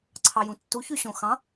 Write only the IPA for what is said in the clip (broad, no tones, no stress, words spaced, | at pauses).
ǀʰɑjũtːu çyɕõxɑ̃